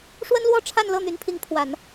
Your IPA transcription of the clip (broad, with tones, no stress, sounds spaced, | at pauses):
ʂ w ə˥ n l w ɔ˥ ʈ͡ʂʰ a˥˧ n l ɤ˥˩ n̪ y˧˥ n pʰ i˧˥ ŋ pʰ w a˨˩˦ n